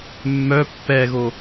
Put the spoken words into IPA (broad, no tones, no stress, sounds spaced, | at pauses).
mː œ pː ɛ ɣ o